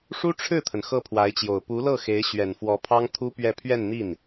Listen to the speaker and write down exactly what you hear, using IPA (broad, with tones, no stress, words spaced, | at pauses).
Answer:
ʂu˥ʈ͡ʂʰɻ̩˥˩t̪ʰə˩n xɤ˥˩pʰwa˧˥ɪ̯t͡ɕjo˨˩ʊ̯ pu˧˥lɤ˥˩xe˧˥ɪ̯ ɕɥɛ˨˩nfwɔ˧˥pʰɑ˥ŋ t̪ʰu˥pɥɛ˥˧ pʰɥɛ˥˧nn̪i˥˩n